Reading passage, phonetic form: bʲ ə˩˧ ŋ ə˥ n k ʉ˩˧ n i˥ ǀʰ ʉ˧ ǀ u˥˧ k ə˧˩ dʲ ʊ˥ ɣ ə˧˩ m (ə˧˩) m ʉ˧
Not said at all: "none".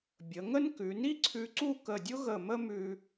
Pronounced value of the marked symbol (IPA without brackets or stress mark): ə˥